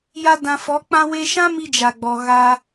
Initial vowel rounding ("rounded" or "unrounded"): unrounded